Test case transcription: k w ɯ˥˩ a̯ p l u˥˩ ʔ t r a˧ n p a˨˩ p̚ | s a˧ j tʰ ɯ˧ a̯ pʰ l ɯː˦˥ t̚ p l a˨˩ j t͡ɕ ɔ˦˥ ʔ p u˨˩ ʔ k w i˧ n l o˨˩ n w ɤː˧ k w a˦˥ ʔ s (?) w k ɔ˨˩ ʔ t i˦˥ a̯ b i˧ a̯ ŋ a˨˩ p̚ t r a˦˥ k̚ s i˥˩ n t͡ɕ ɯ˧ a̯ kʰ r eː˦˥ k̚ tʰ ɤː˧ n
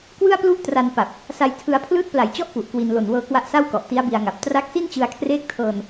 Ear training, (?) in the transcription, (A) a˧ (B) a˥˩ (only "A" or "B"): B